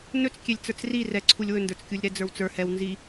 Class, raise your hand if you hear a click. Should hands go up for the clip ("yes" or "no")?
yes